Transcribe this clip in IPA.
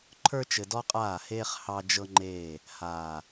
ǃʰ ə˞˦ t͡ʃ ɘ˨ d ɔ˦ qʼ aː˦˨ h eː˦ χ h ɑ˦ d͡ʒ ɤ˦ ŋ͡ǃ eː˦˨ | h aː˨

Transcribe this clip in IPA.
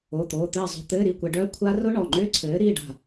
o˩˧˩ t̪ oː˩˧˩ t̪ ɘː˥˨ zˤ o̤˧ t̪ ɘː˧˥˧ ɾ i˥˨ kʷ ɛ˧ ɖ œ˦˥ kʷʰ a˦˥ r ʊ˦˥ ɳ ɔ˩˧˩ ŋ͡ǃ ʏː˦˥ ǀʰ ɘː˨˥ ɾ i˧˥˧ ɖ a̤˥˨

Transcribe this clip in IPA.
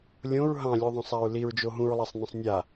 lʲ õ ɹ ɦ ɑ̃ lʲ u ðˤ õ sˤ a ɹ l i ɹ d͡ʒ o ɦ ũ ɹ lˠ a sˤ n ə̃ sˤ nʲ a

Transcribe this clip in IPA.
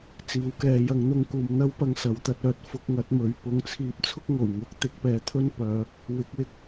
t͡s iː˨˥ w k ɛː˨˧ j ɐ˨˥ ŋ n̪ ʊ˧ ŋ k uː˨ m n̪ ɐ˥ w p ɐ˧ ŋ s ɐ˨˧ w t̪ ɐ˧ t̚ œː˧ t̚ f ʊ˧ k̚ ŋ ɐ˨˥ t̚ m ɵ˨˧ ɥ p ʊ˧ ŋ t͡sʰ iː˧ p̚ t͡sʰ ʊ˥ k̚ ŋ o˨˩ w ŋ ʊ˨˥ k̚ t̪ ɪ˨˥ k̚ p ɛː˨ t̪ʰ ɵ˥ n p œː˨˧ | w ɪ˨˥ k̚ w ɪ˧ k̚

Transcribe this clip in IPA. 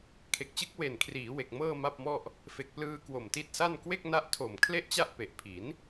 kʰ e˨˩ k̚ t͡ɕ ɯ˦˥ k̚ w e˨˩ n kʰ r iː˩˦ w e˨˩ k̚ m ɤː˥˩ m a˥˩ p̚ m ɔ˥˩ ʔ | f e˨˩ k̚ p l ɯː˧ k w o˨˩ m t i˦˥ t̚ s a˥˩ n k w e˥˩ k̚ n a˦˥ ʔ tʰ o˨˩ m kʰ l e˥˩ ʔ t͡ɕ a˥˩ ʔ p e˨˩ ʔ pʰ i˩˦ n

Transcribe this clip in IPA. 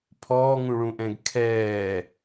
pʰ ɔː ŋ ũ ɭ ũ ʔ ɛ̃ ɡ kʰ ɛː

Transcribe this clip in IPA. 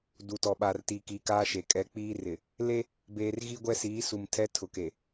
d u˨ t ɔ˨ ɓ a˨ r t iː˨ k iː˨ k aː˦ ʃ e˨ kʼ ɛ˦ k͡p iː˦ r ɪ˨ | l e˦ | b eː˨ r ɣ i˦ ɡʷ ɛ˦ s iː˨˦ s u˨ m tʰ ɛ˦ tʰ ʊ˨ k e˨

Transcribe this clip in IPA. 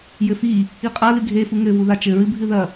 j ɘ f i | i qʼ a l ɨ ɡʱ e f u ŋ ɘ v u ð a t͡ʃ ɘ ɹ ɨ bʱ ɨ ð ɐ

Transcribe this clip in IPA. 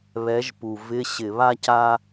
β ɛ˨˥ ʒ p u˨˩ v ɪ˧˥˧ ɕ ɪ˧˩˧ β a˥ c a˥

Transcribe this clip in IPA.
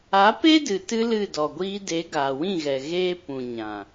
a˨˦ p e˦ d ɨ˨ t ɨ˧ l ɨ˦˨ d ɔ˨ ɡʷ iː˧ d e˨˦ ɡ aː˨ w ĩ˦˨ ɣ ɛ˨ ɣ eː˧ p ũ˨ ɲ ã˨

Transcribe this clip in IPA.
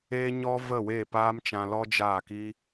e˦ ɲ ɔ˦ v ə˦˨ w e˦˨ p aː˦ m t͡ʃ ã˧ l ɔ˦ d͡ʒ aː˦˨ k i˦

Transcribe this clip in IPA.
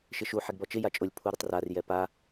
ʃ ɪ ʃ u ħ ɛ ɡ b ɔ t͡ʃ ɪ j a t͡ʃʼ ʊ lʲ pʰ u ɾ ɪ tˤ r a r j ɛ p a

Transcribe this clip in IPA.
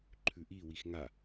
ǃʰ ʉ ʔ i w i x ŋ a

